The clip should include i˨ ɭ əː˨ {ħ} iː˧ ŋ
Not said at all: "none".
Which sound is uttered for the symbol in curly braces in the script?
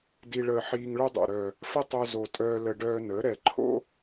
ħ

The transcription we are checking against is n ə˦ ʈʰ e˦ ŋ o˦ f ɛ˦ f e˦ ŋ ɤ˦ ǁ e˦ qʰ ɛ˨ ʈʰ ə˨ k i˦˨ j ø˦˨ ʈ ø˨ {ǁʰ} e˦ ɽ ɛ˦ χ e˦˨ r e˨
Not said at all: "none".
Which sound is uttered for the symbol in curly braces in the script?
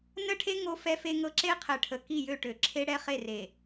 ǁʰ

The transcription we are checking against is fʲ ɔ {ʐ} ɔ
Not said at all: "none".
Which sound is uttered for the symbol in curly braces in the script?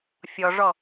ʐ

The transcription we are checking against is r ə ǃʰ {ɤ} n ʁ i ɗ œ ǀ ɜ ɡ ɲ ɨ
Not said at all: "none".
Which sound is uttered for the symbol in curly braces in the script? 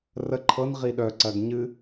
ɤ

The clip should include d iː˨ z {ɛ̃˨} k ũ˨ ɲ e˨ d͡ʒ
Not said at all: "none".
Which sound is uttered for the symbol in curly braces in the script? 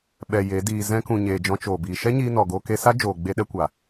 ɛ̃˧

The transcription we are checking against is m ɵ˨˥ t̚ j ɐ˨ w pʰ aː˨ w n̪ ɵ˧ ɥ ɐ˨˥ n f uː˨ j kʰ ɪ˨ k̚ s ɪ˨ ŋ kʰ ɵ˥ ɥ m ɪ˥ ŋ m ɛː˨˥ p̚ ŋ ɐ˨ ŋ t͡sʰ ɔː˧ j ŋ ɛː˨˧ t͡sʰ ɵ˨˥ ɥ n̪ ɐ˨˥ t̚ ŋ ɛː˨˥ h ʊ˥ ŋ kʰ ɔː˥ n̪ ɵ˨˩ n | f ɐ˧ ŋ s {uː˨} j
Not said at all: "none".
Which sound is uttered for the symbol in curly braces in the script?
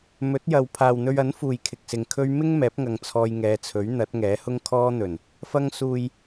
uː˨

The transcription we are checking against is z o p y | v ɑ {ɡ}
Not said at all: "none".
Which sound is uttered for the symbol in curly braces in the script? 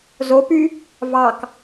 k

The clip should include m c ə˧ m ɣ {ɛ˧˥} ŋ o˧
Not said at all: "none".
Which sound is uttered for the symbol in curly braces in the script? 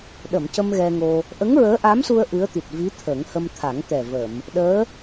ɛ˧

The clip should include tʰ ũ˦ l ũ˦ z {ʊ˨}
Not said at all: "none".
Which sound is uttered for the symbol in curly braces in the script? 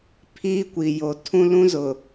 ʊ˨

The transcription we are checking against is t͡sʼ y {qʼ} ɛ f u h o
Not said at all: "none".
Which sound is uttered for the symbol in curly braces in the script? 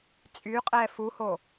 qʼ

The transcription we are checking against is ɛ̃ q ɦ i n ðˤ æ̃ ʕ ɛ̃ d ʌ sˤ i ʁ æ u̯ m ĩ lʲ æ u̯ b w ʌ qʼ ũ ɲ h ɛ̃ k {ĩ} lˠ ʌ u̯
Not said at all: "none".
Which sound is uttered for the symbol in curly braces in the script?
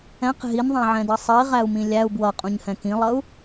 ĩ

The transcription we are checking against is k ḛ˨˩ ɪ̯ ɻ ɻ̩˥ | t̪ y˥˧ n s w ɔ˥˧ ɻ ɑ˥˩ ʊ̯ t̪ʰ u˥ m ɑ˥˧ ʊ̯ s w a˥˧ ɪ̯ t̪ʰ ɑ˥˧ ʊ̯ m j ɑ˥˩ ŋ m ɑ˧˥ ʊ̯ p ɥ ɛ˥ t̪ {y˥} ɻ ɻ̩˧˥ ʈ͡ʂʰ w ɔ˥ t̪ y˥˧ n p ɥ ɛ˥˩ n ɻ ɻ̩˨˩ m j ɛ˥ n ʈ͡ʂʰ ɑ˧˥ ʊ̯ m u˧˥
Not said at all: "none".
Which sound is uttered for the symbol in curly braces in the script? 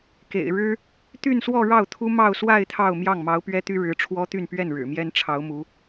y˥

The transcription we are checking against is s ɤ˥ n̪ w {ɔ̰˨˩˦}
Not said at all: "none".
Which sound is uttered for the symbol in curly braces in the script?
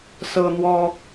ɔ˥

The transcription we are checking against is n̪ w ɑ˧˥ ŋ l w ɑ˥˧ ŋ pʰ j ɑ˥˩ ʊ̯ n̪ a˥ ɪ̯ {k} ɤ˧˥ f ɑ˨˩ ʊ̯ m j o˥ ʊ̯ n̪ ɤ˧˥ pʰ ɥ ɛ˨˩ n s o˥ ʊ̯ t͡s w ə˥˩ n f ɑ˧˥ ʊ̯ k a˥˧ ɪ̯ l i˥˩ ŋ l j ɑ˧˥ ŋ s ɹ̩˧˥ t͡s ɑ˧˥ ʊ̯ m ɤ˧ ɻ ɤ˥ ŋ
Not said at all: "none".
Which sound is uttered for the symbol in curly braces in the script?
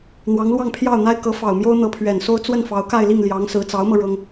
k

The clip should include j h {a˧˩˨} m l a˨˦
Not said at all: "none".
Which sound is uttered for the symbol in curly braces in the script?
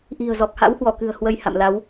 a̰˧˨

